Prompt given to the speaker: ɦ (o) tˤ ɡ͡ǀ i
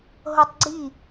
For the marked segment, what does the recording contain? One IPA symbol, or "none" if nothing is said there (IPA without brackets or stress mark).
o